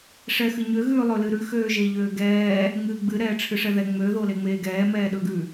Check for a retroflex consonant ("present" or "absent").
present